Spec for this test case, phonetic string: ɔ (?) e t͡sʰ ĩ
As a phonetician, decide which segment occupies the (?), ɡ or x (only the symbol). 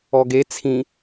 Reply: ɡ